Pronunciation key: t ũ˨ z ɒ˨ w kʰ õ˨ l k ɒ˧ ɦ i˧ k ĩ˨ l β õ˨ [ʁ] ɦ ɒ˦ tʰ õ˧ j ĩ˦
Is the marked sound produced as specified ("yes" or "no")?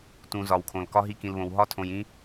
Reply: no